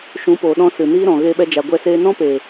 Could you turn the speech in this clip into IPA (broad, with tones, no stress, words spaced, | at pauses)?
ʃũ˨˦poː˨ɗɔ̃˧ sɨ˨niː˦ɾɔ̃˨ ɣeː˧ɓɛ˧d͡ʒa˨ ɡʷɛ˧ seː˧nɔ̃˦peː˨